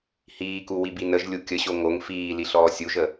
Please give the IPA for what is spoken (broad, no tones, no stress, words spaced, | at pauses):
hiːku wibinəʒlʲu kʲəɕo ŋoŋ fiːli ɬɔːsʲuʒə